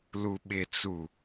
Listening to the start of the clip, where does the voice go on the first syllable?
low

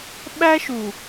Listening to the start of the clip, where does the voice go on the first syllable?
high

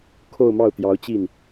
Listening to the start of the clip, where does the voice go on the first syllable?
falling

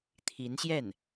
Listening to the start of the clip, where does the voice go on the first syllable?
rising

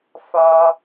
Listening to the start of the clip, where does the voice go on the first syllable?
high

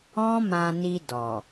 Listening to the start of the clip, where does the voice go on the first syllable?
high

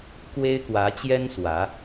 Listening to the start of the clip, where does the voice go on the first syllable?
high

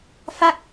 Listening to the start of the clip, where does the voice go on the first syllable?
falling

